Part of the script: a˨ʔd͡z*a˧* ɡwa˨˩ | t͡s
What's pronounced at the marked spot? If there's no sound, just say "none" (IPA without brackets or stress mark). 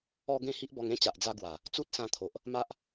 a˧